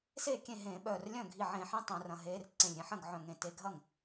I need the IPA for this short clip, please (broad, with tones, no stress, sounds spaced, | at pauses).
s eː˥˩ kʲ ẽ˥˩ ɦ ẽː˧˩˧ ɓ œː˧˩ r lʲ œ̃˥˩ ɡʱ i˧˩ ʕ ẽ˧˩˧ ħ ĩ˧ tˤ œ̃˧˩˧ r ɐ̃˧˩ ɦ eː˧ r ǀ ẽ˧˩ lʲ ɾʲ ẽ˧ ħ ɐ̃˥˩ ɡ ʕ œ̃˧˩ ŋ ẽ˧˩ t e˧ ɡʱ ɐ˥˩ ŋ